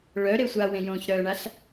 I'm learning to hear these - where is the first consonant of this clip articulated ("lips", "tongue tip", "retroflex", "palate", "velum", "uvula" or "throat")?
retroflex